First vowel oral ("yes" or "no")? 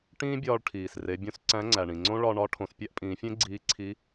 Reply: no